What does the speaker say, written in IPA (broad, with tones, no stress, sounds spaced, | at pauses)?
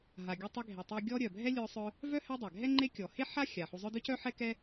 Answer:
ɦ a˨ ɡʲ u˦ tˤ ɛ˥ ɡʱ e˨ tˤ e˦ ɡʲ ɔ˦ ɾʲ œ˩ bʱ ɛ˥ lʲ œ˦ sˤ œ˦ | v œ˥ h ɛ˦ dˤ ɛ˩ ɡʱ ɛ˥ ŋ͡ǃ e˦ kʲ ɔ˩ h e˥ ħ a˥ xʲ a˩ ħ u˨ zˤ œ˦ d œ˥ c œ˥ ħ ɛ˥ k ɛ˥